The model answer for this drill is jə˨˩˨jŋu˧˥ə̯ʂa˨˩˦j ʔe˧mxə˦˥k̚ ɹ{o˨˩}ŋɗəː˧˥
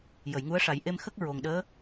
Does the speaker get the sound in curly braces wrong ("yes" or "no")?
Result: no